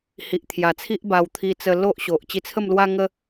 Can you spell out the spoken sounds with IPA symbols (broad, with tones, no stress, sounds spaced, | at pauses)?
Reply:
h i˨ ʔ t̪ʰ j a˨˩ t͡sʰ i˦ ʔ b a˧ w t̪ʰ i˧ t͡s ə˧ l o˦ ʔ ɕ o˨ ʔ t͡ɕ i˧ t͡sʰ ə˥˧ m l w a˦ ŋ ə˦